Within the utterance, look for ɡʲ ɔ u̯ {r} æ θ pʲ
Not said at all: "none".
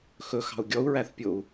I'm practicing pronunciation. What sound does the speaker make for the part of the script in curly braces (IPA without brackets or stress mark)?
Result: ɹ